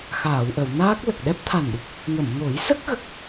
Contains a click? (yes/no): no